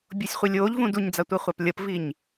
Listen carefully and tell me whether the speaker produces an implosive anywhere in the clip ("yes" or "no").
no